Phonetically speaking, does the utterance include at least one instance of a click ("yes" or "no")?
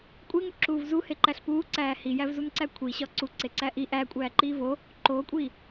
yes